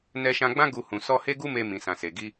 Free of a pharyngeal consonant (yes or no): yes